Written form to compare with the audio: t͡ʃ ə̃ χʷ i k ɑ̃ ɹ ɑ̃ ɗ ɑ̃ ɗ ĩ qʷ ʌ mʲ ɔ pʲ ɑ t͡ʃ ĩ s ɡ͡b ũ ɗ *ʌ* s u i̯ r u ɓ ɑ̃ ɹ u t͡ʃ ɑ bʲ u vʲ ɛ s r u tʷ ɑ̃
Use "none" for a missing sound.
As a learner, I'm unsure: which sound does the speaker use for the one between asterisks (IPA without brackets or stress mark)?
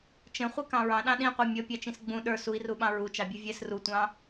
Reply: ə˞